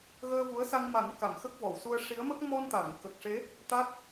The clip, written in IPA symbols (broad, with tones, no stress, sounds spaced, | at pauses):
ɣ əː˧ v u˧˥ ə̯ s a˧ ŋ m a˨˩˦ n k a˨˩˨ m x ə˦˥ k̚ v ɔ˨˩˨ w s u˧ ə̯ ʂ i˧˥ ə̯ m ə˦˥ k̚ m ɔ˧ n t̪ a˨˩˨ ŋ k ə˨˩ k̚ ʂ e˧˥ | t̪ a˦˥ t̚